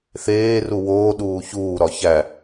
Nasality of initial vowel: oral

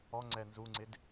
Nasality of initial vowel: oral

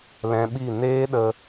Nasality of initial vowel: nasal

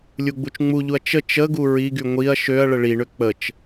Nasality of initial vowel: oral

